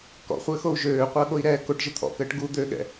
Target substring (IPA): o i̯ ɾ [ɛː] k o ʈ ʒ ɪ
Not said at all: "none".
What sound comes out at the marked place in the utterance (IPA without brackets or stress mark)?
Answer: ɛː